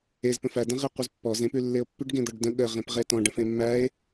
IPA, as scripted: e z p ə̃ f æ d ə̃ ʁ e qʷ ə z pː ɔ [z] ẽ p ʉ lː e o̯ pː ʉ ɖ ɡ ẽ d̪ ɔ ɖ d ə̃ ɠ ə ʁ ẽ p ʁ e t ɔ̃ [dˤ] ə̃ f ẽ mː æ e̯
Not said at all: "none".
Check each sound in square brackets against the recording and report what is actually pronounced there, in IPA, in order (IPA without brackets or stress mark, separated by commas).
z, ɖ